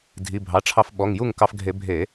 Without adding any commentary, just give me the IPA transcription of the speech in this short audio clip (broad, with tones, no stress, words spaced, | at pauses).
dʱi˩˧˩bʱɑ˩˧˩ʈ͡ʂʰɑ˧f ɓɔ˩˧˩ŋju˥˩ŋkɑ˧fɡʱe˧˩˧ bʱe˧˩˧